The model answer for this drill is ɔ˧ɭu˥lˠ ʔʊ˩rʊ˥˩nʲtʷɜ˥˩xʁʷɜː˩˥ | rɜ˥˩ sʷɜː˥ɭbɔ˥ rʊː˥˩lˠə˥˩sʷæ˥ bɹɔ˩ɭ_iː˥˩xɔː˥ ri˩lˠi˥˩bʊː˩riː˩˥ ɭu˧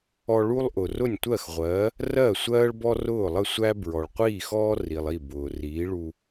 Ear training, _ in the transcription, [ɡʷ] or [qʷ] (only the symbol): qʷ